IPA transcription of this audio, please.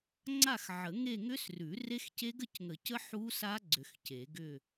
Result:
ŋ͡ǀ a˥˧ x ʕ ə˨˩˦ ŋ e˥˧ ŋ ʏ˦˥ s r ʉ˨˩˦ r e˦˥ x c e˦˥ ɡ ə˥˧ c ŋ ə˨˩˦ c ə˦˥ ħ u˦˥ s a˦˥ ɡ͡ǀ ʏ˨˩˦ x c e˨˩˦ ɡ ʏ˥˧

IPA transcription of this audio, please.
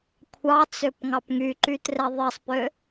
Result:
kʷʰ ɑ t͡s ø p ŋ ɑ p ŋ y ǃ y t r ɛ ðˤ i sˤ p ø

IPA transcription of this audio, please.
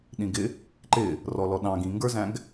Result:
ɗ ĩ ɡ ɪ | ǃ ɪ | r ɔ l ɔ ɗ ɑ̃ ɡ ĩ ŋ ɡ ə˞ z æ̃ ɡ

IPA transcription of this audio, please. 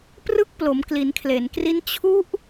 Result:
p r ɯ˥˩ k̚ p l o˩˦ m k l i˩˦ n kʰ l e˩˦ n k r i˦˥ n t͡ɕʰ u˦˥ ʔ

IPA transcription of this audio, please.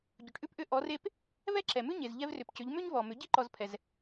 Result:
ɟ ʏ˩ ʈ ʔ ʉ˥ p ʔ ʏ˧˥ ʔ ɔ˩˧ r e˧ p | v ɛ˥ ǁ ɛ˩ m ʉ˥ ɲ e˩ z ʎ ɛ˧ v r ʏ˩ p c ʏ˩˧ ʎ m ʏ˥ ɲ v ɔ˩ m ʏ˩˧ ɟ i˥ ǃ ɔ˧ z pʰ ɛ˩ z

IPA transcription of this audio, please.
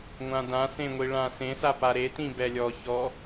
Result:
ŋʷ ã d ã s ẽ ŋʷ i ɭ ã s ẽ s a p a ɾ e t ĩ b ɛ lʲ ɔ ç ɔ

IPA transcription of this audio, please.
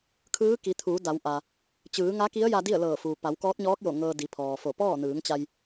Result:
kʰ ɯː˧˥ k i˩˧ t̪ʰ uː˩˧ d a˩˧ w ʔ a˩ | t͡ɕ ɯː˩˧ ŋ a˧˥ k i˧˥ ə̯ j a˧ d i˥˨ ə̯ l ɤː˧˩ f uː˩ p a˩˧ w k ɔː˧˥ t̚ ɲ ɔː˧˥ k̚ j o˧˩ ŋ ɤː˧ d i˩˧ pʰ ɔː˩ f o˧˩ p ɔː˥˨ n ɯː˩˧ ŋ t͡ɕ a˧ j

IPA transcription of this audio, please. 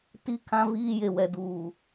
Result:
t i˦ kʰ ã˦ v iː˦ j e˨ w ɛ˨ d uː˨

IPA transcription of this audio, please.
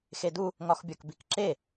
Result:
x e d u | ŋ ɒ x bʲ ɒ k b i k ǁ e

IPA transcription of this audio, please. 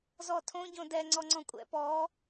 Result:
z ɔ tʰ õ ɟ õ d ɛ ŋ͡ǀ ɔ ŋ͡ǀ ɔ̃ kʷʼ ɛ̰ p ɔ

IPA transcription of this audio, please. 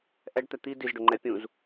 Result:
ʔ ɛ ɖ t̪ ɛ t̪ i d i z ɖ ʊ ŋ͡ǃ ɛ pʲ ũ z

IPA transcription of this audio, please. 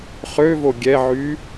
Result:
χ ø v o ɡʲ ɛ ʕ y

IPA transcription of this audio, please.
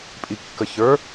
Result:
pʼ i kː ə ç ə˞

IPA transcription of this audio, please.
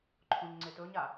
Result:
ǃʰ õ ɲ ŋ͡ǀ e t ɵ ɲ a

